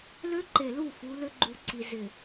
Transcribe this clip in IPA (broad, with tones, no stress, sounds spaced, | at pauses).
l ø˦ ǃ e˨ l u˦˨ f u˨˦ l ʏ˦ ɡ͡ǃ u˨ ǀ i˨ z ɪ˨